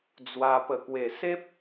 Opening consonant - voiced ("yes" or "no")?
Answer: yes